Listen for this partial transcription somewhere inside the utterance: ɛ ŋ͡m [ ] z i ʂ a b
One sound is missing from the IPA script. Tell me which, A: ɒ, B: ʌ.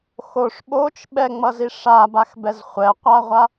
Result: B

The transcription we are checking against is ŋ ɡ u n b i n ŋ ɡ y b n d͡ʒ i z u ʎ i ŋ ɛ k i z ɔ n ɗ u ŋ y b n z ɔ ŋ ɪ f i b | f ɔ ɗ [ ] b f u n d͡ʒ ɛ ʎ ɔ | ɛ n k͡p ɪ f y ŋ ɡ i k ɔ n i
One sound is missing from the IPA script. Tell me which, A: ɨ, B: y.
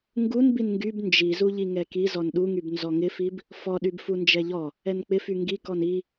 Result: B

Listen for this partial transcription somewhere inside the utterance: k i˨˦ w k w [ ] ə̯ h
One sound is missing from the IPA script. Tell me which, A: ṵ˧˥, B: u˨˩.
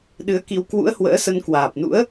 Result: A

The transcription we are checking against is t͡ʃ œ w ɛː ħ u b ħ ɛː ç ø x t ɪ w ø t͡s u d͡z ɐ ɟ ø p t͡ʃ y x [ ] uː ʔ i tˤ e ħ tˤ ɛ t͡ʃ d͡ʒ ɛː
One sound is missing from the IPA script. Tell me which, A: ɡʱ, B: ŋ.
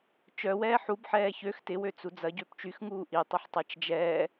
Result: B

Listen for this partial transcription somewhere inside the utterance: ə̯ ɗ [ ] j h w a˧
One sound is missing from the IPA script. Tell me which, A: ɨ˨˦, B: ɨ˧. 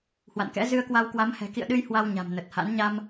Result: B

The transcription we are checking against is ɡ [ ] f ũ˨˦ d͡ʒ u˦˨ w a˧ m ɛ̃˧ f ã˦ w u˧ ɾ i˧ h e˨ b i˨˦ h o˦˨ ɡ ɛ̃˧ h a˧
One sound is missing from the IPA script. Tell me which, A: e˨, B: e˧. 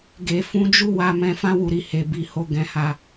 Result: A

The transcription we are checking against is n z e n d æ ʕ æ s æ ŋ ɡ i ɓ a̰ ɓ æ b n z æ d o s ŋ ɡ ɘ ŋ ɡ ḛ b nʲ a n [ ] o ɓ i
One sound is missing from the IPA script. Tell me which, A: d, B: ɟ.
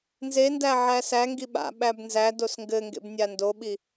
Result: A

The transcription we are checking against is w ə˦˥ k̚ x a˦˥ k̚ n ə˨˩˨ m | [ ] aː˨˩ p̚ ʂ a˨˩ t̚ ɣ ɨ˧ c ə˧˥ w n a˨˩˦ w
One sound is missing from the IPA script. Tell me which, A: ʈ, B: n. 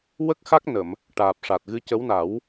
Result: A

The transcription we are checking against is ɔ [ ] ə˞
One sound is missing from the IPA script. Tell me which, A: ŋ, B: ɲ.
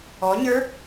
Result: B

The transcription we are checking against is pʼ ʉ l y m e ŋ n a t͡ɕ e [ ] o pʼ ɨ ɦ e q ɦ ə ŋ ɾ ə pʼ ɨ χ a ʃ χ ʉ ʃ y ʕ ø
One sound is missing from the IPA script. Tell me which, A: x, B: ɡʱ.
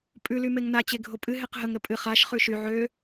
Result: B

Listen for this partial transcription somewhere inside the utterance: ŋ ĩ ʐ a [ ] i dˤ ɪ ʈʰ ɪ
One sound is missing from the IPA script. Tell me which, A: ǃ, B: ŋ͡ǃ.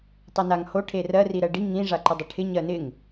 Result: A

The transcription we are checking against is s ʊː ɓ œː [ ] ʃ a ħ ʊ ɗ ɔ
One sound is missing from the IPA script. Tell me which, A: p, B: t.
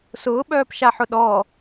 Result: A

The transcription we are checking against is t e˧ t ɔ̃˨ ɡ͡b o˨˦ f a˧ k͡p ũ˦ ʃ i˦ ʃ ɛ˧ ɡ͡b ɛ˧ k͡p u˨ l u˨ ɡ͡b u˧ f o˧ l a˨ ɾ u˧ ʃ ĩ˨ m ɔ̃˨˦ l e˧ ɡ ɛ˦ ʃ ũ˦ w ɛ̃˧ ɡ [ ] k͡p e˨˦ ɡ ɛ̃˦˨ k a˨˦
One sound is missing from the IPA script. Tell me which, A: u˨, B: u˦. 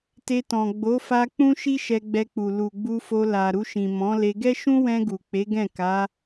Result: A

